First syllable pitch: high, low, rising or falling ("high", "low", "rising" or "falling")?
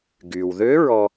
low